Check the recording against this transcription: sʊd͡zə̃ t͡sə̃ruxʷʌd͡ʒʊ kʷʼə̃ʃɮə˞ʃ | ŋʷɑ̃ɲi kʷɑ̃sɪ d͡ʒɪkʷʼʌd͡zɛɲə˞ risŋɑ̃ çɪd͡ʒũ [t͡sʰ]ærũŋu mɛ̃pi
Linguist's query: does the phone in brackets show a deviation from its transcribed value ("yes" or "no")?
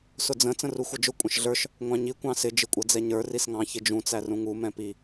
yes